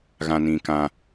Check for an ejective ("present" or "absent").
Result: absent